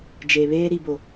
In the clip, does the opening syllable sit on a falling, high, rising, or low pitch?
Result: low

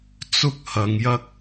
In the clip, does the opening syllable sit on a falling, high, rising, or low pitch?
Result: high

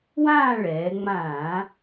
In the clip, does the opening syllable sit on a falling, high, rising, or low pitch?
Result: falling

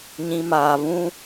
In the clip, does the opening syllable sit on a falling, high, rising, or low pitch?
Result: low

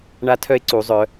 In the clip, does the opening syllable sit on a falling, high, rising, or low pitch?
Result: rising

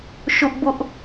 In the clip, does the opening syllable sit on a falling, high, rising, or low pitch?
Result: high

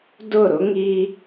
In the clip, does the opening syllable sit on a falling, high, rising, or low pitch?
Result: falling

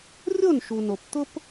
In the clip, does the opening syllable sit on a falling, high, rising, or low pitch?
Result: falling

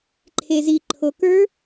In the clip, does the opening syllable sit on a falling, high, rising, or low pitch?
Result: low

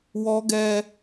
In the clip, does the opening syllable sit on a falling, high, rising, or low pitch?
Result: high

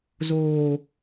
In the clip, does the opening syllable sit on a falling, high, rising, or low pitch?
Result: high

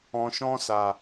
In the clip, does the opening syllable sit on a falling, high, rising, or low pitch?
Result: low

